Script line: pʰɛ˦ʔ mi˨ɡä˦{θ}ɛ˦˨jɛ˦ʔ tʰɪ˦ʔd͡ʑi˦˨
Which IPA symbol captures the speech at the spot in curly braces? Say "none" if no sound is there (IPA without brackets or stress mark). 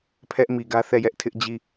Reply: θ